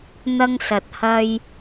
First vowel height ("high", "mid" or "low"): low